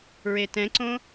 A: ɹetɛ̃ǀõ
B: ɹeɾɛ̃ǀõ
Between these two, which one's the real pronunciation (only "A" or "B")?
A